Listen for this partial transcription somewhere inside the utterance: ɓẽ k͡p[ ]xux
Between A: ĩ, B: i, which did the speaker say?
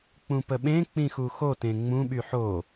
A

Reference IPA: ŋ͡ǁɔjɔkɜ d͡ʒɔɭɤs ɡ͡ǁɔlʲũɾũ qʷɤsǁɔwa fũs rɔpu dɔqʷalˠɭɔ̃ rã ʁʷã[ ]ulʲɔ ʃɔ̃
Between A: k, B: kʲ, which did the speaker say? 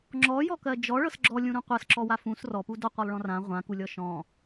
A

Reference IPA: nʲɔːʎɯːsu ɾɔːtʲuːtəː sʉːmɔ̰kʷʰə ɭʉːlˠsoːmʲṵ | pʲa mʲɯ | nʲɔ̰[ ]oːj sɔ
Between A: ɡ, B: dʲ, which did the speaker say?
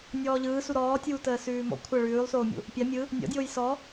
B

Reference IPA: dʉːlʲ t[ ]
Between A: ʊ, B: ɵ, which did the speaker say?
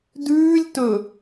B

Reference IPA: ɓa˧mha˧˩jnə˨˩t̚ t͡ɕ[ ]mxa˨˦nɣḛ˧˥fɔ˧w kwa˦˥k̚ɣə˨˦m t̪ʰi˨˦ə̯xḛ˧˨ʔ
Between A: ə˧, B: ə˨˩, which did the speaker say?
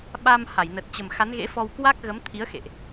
B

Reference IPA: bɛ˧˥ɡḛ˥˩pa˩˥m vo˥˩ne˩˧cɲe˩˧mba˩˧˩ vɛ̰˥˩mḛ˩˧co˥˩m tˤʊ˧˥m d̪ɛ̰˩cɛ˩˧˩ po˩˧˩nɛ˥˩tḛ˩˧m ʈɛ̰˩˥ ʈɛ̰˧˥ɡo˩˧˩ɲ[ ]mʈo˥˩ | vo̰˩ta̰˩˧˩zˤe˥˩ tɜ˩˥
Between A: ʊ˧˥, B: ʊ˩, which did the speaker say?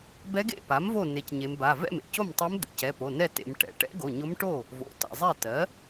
A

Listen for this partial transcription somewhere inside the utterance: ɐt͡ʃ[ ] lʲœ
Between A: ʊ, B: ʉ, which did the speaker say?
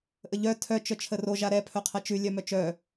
B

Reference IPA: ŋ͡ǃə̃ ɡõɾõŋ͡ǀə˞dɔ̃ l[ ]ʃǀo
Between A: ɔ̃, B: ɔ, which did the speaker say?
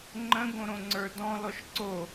B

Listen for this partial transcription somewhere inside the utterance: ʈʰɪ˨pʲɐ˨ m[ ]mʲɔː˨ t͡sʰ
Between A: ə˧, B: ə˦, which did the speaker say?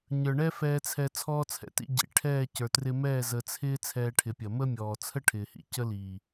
B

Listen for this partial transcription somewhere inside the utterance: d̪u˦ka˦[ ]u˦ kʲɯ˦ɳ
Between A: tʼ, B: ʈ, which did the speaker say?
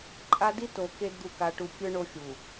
B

